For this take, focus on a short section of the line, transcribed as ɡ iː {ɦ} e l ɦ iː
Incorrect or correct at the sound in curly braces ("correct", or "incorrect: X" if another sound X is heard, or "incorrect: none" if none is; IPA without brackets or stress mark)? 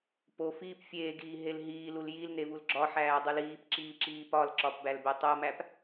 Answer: correct